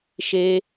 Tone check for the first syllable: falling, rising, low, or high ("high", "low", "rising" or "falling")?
high